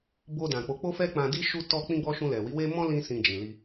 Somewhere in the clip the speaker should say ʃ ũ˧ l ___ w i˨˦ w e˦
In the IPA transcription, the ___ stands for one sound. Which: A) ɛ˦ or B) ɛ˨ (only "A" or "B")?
B